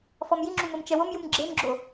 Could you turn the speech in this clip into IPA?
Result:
f ɔ m j i ŋ͡ǁ u m ɤ m t͡ʃ ɛ w o m j u m ɡ͡ǁ e m ɡ͡ǁ o

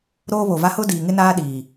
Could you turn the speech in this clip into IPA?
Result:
ɾ oː˦ β o˨ v a˦ h ʊ˦ d iː˨ ŋ ɪ˦ n aː˦ ɗ iː˨

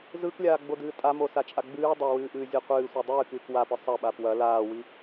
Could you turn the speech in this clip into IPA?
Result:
z ɯ k lʲ aː ɡ͡b o d ɨː tʼ a m o s a t͡ʃʼ a ɡ͡b ɨː dˤ ɐ w ɨː ʔ ɨː zʲ ɯ qʷ ɨː sʷ ɐ dˤ ɨː k ɨː k w a p ɨ sˤ ɐ ɓ a p w ɐ l aː w i

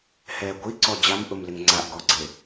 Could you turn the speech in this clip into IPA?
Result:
h ɛ ɡʷ i ǀ ɔ d͡ʑ a m ʔ ʊ m l ɪ ŋ ŋ͡ǀ a ʔ ɡ ɔ ɡ͡ǀ e

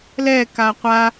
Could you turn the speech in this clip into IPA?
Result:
l ɛ k a qʷ a

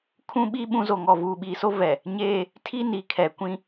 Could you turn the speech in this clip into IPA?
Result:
kʰ ũ˦ ɓ i˦ ɓ ũ˦ z o˨ ŋ ɔ˨ v uː˨ ɓ iː˨ s o˦ v ɛ˨ | ɲ eː˦ | tʰ i˦ n i˨ kʰ ɛ˨ kʷ ĩ˦

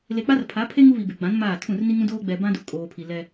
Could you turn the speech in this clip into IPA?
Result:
l e˨ k͡p a˦ r pʰ a˨˦ pʰ e˦ ŋ u˦ β i˨ b e˨ ɡ͡b ã˨˦ n m aː˦˨ tʰ ũ˦˨ r n i˦ ŋ ũ˦ d oː˦ ɡ͡b ɛ˨ b ã˦ d u˨ kʼ oː˨ pʰ i˨ l ɛ˦

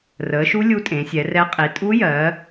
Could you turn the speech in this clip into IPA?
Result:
r əː˨˦ ʃ u˦˥ lʲ u˦˥ tʼ ẽ˨˦ sʲ ɛ˨˦ r ɛ˦˥ qʼ i˨˦ tʼ u˦˥ j ɜ˨˦

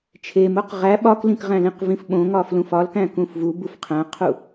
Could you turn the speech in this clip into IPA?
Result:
t͡ʃʰ e m o q ʁ æ ɓ ɒ k l ĩ k ʁ æ̃ l ĩ q v ĩ f ɓ õ ŋ ɒ f l ũ f ɒ l k æ̃ k ũ f v u b u f qʰ æ̃ qʰ u

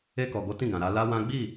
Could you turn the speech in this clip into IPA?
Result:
e˧ k ɔ˨ ɡ o˨˦ t ĩ˦˨ ɡ ã˨ ɾ a˧ l a˦ w ã˦ ɡ͡b i˦˨

